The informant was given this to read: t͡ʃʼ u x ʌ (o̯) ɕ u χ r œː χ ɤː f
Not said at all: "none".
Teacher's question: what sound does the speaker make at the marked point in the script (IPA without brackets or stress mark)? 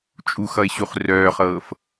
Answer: e̯